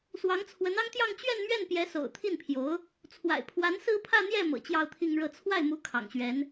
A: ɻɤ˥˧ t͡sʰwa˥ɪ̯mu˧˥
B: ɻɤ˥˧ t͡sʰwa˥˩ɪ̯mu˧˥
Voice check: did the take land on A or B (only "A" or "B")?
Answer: B